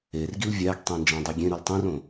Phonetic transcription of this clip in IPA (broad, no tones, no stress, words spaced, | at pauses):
erɡil vʲæɡtˤĩ nd͡ʒæ̃dˤiɡʲẽɾul tˤĩrõ